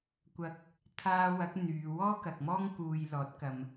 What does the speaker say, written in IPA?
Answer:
kʷɐ˧k̚ | t̪ʰaː˧wɐ˨˥k̚ n̪yː˨˧ wɔː˥kɐ˨k̚mɔː˥ŋ kuː˨jlɔː˨˥t̚ kɐ˨m

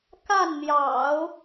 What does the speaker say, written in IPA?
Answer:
ka˥˩nn̪jɑ̰˨˩˦ʊ̯

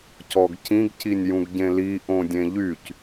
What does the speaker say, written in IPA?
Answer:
cɔɡcĩɡ cinʲjũɡɟẽli ʔõdʲẽʎyc

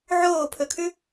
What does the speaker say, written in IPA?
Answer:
ʕoːpʰɵkʰʉ

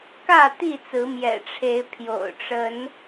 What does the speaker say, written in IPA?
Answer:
kä˥˨t̪i˥˨t͡sɹ̩˨˦ mjɛ̰˨˩ʈ͡ʂʰe˨˦ɪ̯ pʰjo̰˨˩ʊ̯ʈ͡ʂə˨˦n

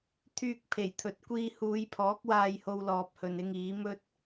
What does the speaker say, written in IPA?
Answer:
t̪ʰyː˧k̚pʰe˨˩jt̪ʰɵ˨t̚ kʷiː˧huː˨˧jpʰɔː˨˥k̚waː˧j ho˧wlɔː˨p̚hɵ˨nɪ˧ŋ iː˨˥mɵ˥t̚

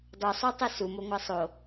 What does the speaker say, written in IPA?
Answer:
dˤusˤotˤɨ sumoŋʷæ sˤo

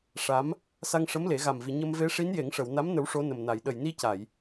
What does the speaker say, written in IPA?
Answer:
ʂa˧˥m | sa˧ŋʂə˧˥m le˨˩˦ ɣa˨˩mvi˨˩˨ ɲə˧mve˧˥ ʂi˧˥nje˨˩˦ŋʂə˨˩˨wna˧˥m nə˧˥wʂo˧˥nə˨˩mna˨˩˨j ɗə˨˩jni˧ca˨˩˨j

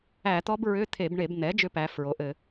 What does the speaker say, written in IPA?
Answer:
æ˧˩˧t̪ɔ˦˥bɹʏ˧˥˧ t̪ʰe˧˩˧bɳe˧˩˧b n̪ɛ˩˥ d͡ʒʏ˦˥pæ˩˧ fɹo˩˧ʔɘ˧˩˧

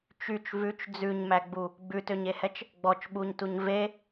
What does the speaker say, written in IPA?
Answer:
t͡ʃyt͡ʃ vʉt͡ʃ d͡zʉɲmæɡ͡bu | ɡ͡bʉtøɲehɛt͡ʃ | ɡ͡bɔt͡ʃɓuɲtuɲ ve

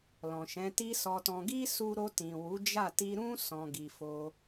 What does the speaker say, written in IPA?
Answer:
lɔ̃˨ ʃɛ̃˨˦ti˦sɔ˧tɔ̃˧ ɡi˦su˧ɾo˧tĩ˨ wu˨˦d͡ʒa˦˨ ti˧ɾũ˦ sɔ̃˧ɡi˧ fo˦

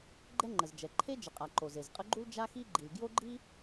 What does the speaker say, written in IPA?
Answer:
ɡ͡ǃɛ˥ŋ͡ǃə˩zd͡ʒɛ˩ ǃʰe˥d͡ʒə˩qʼa˩ ǃo˩ze˩zqʼə˥ɡ͡ǃu˥l d͡ʒa˥xi˥ɡ͡ǃi˩l ɡjo˥ɡ͡ǃi˥

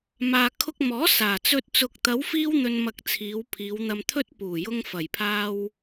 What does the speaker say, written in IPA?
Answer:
maː˨kʰʊ˧k̚mɔː˨˥ saː˨˩t͡sɵ˧t̚ t͡sʊ˨k̚ t̪ɐ˨˧wfiː˧w n̪ɵ˧n mɐ˧k̚t͡sʰiː˨˧w pʰiː˨˧wn̪ɐ˧mt̪ʰɵ˥t̚ puː˨˩jʊ˧ŋ fɐ˨˩jpʰaː˧w

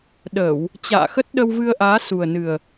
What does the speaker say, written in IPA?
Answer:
ɗə˧˩˨w | t͡ɕa̰ː˧˨xə˦˥t̚ ɗə˧wvɨ˧ə̯ʔaː˨˦ su˨˩ə̯nɨ˨˩ə̯

